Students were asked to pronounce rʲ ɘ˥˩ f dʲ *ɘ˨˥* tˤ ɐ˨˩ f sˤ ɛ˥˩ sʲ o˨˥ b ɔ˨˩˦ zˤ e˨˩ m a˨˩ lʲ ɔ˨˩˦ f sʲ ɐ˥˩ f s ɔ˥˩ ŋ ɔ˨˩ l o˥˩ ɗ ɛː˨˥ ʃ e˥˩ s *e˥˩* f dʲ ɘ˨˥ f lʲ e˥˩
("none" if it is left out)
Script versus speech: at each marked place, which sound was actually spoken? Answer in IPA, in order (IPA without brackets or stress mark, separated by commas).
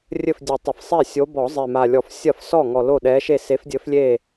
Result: ɘ˨˩˦, e˨˥